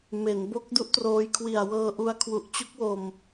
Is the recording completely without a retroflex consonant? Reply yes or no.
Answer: yes